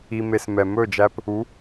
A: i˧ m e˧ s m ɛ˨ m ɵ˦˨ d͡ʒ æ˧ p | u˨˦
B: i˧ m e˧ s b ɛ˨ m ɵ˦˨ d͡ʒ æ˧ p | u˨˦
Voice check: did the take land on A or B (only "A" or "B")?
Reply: A